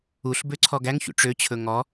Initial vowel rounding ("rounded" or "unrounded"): rounded